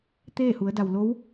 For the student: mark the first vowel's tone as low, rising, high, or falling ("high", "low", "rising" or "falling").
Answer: falling